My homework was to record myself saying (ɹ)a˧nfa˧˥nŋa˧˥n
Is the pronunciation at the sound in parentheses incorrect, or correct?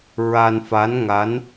correct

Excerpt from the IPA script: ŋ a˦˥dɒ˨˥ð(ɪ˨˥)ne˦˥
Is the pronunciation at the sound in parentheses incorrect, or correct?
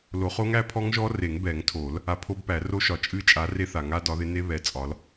correct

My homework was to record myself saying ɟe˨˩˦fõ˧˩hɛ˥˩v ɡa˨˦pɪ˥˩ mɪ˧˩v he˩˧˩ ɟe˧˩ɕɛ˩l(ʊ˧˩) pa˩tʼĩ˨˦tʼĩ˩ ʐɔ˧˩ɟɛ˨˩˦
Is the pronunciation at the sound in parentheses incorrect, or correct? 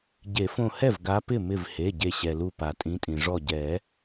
incorrect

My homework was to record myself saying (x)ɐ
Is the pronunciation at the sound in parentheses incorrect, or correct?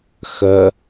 correct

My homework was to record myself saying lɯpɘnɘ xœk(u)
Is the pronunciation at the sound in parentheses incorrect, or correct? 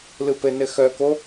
incorrect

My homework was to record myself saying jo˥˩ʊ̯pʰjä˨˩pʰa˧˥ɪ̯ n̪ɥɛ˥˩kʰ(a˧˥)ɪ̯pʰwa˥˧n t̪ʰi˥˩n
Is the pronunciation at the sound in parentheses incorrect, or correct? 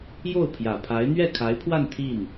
correct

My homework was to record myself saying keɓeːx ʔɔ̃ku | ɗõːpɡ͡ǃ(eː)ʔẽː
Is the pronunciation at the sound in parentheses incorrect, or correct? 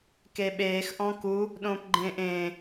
incorrect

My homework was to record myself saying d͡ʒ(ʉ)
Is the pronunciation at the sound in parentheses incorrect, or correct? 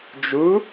incorrect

